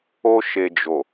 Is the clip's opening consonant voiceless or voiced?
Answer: voiceless